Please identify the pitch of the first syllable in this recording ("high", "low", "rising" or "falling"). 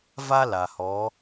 high